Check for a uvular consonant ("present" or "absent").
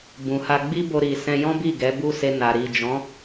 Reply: absent